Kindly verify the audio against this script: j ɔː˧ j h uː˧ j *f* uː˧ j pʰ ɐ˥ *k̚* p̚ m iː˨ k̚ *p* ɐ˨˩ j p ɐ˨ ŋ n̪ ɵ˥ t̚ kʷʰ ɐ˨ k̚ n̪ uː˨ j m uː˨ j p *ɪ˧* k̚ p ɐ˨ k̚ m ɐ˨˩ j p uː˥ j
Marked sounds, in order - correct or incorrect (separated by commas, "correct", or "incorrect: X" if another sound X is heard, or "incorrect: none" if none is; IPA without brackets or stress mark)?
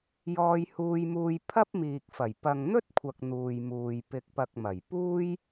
incorrect: m, incorrect: none, incorrect: f, incorrect: ɪ˨